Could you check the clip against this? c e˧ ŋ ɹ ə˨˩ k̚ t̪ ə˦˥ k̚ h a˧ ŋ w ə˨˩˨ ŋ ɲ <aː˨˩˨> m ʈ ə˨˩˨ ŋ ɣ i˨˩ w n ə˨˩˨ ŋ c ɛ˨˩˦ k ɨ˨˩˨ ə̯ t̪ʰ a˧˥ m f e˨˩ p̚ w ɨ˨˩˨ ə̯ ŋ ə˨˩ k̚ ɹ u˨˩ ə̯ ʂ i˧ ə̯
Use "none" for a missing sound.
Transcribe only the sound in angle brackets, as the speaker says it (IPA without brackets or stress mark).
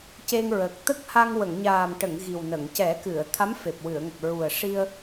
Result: aː˨˩